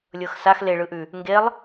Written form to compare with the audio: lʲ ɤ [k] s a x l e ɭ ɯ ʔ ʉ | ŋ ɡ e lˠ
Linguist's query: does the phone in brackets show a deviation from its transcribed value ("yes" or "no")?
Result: yes